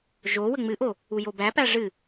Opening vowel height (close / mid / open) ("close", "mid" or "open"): mid